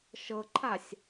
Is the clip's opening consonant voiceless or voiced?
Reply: voiceless